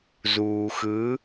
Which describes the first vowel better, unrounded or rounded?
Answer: rounded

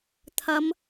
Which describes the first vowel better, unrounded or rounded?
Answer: unrounded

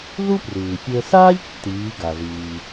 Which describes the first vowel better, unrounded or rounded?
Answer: rounded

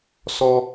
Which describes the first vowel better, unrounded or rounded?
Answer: rounded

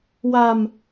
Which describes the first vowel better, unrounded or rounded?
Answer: unrounded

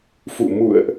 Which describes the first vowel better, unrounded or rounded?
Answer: rounded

